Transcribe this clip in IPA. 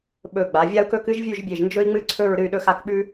ɓ ɵ˧˩ ɡ͡b a˩˧ vʲ a˥ u̯ k ɵ˥ k ɨ˥ ʒ vʲ ʉ˥˧ ʒ bʲ e˧˩ ʒ n d͡ʒ ɵ˥ i̯ ŋ͡m ɨ˥ ǀʰ ɵ˥˧ ɹ ɾ ɨ˥˧ y̯ ɗ ɵ˥ x a˥˧ k ɓ ʉ˥

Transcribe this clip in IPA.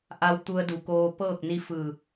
ʔ a˧ w t̪ u˧ ə̯ d u˩˧ k oː˧ p ɤː˥˨ k̚ n i˧˥ f ɯː˧˩

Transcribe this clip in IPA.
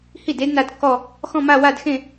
h i˥˩ d e˦˥ d n a˦˥ d kː ɔ˥˧ | x ɔ̃˥˧ m a˥˧ w a˥˧ d x ẽ˥˧

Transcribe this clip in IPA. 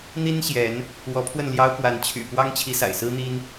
n̪ i˦ n ɕ j ɛ˨˦ n | w ɔ˨˦ pʰ w ə˥˨ n l j ɑ˦ ʊ̯ k w a˨˦ n t͡ɕʰ y̰˨˩ p w ɑ˦ ŋ t͡ɕʰ i˨˦ s a̰˨˩ ɪ̯ s ɹ̩˦ n̪ i˦ n

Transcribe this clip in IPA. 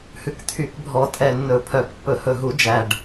h ʉ˨˩ k t̪ʰ y˨˩˦ k bʱ ɔ˨˩˦ tʼ ɛ˨˩ nː ɵ˨˩˦ pʰ œ˨˩˦ k pː ɵ˨˩˦ h ɵ˨˩ ɦ u˨˩˦ d͡ʒ æ˨˩ ɖ

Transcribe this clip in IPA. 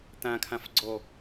t̪ ã kʰ ã f ɡ͡ǀ ɔ

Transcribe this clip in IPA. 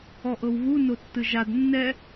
ɔ ʔ ɤ w β u n o tː ɯ ʒ a d nː ɛ

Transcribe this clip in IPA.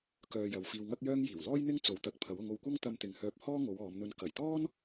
k œː˧ j ɐ˨˧ w f iː˧ w ŋ ɐ˥ k̚ j œː˥ ŋ j iː˨˩ w l ɔː˥ j n̪ ɪ˥ ŋ t͡s o˨˥ w t̪ ɐ˨ k̚ pʰ ɐ˨˥ w ʊ˨˧ ŋ o˧ w kʷ ɐ˥ ŋ t̪ ɐ˧ m t̪ ɪ˨ ŋ h œː˧ p̚ h ɔː˥ ŋ o˨˧ w ɔː˨˧ m n̪ ɵ˧ n k ɐ˨˩ j t̪ ɔː˥ n

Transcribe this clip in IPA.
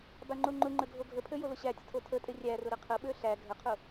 b a ŋ͡ǃ o ŋ͡ǃ ʊ ŋ͡ǃ ə ɡʱ o ɡʱ ə pʰ ø j o l ʊ ɕ æ tʲ ə tʰ o tʰ ə tʼ ɪ rʲ æ r ʊ ɾ ə qʰ ə ɓ ø ɬ æ ɡʱ ə qʰ ʊ

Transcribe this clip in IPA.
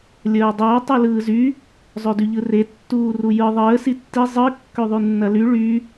lʲ əː dˤ əː tˤ ɯ l ɯː z y | zˤ ø d y ʎ ɯ r e tː uː r u j ɯ ðˤ əː s i tː i zˤ ɯ kː ø ðˤ y nː ɐ l y ɭ y

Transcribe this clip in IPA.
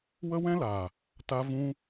w ə˦ w ɛ̃˦ l aː˨ | t a˧ v ũ˧

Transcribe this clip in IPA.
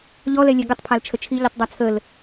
ʎ ɔ l ɛ lʲ ɛ ɡ ə tˤ pʰ a l t͡ʃʰ ə t͡ʃʰ i ʎ i tˤ dˤ a t͡sʰ ə l

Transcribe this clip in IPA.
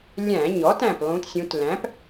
lʲ æ̃˧˩˧ ɲ ɔ˩˥ t æ̃˧˩ p lˠ ũ˩˧ t sʲ ũ˩˧ t l æ̃˩˥ p

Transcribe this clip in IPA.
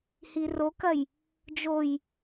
h i r o k ɐ j | d͡ʒ o j

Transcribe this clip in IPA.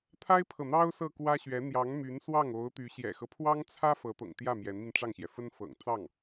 t̪ʰ a˥ ɪ̯ pʰ ɤ˨ n̪ ɑ˥ ʊ̯ s ɤ˥˩ k w ä˥ ɕ ɥ ɛ˧˥ n̪ j ɑ˧˥ ŋ m y˧˥ n s w ɑ˥˩ ŋ o˧˥ ʊ̯ t̪ y˧˥ ɕ j ɛ̰˨˩ x ɤ˦ pʰ w ɑ˥ ŋ t͡sʰ ä˥ f ɤ˧˥ t̪ ɤ̰˨˩ ŋ t̪ j ä˥˩ m j ɛ˧˥ n m i˧ n ʈ͡ʂ ɑ˥˩ ŋ ɕ j ɛ˩ f ə˥ n f ɤ̰˨˩ ŋ t͡s ɑ˥˩ ŋ

